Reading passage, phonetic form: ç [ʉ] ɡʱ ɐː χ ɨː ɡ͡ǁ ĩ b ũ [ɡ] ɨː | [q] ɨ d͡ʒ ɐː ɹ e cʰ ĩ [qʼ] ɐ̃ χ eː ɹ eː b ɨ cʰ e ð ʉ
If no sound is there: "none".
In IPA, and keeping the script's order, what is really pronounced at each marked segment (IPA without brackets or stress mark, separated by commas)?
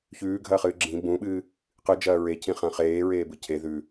ʉː, ɓ, q, χ